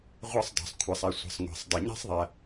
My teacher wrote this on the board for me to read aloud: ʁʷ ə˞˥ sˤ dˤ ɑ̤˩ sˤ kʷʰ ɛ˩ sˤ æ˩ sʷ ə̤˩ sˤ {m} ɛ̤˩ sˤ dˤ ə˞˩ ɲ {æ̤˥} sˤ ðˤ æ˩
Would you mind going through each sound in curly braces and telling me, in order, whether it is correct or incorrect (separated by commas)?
incorrect, correct